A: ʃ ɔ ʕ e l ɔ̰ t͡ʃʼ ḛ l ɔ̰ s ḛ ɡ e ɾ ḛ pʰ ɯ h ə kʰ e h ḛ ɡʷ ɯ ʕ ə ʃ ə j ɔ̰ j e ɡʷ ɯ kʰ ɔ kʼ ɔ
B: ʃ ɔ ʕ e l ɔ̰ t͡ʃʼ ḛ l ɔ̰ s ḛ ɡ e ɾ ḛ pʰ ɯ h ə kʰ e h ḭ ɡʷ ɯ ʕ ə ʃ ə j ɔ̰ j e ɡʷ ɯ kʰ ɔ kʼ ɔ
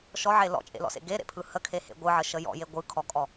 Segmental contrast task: A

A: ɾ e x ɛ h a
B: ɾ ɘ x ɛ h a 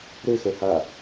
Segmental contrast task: B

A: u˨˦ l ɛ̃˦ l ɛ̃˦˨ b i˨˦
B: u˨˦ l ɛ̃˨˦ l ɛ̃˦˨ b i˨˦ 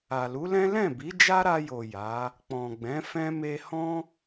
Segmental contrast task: A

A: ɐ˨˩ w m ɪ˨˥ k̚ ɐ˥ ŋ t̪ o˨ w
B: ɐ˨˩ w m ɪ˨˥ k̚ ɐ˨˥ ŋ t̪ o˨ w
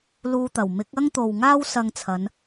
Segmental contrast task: A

